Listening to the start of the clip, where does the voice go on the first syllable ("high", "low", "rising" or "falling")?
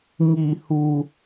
low